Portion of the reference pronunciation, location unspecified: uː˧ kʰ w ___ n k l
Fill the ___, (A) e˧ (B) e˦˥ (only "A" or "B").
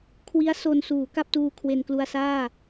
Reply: A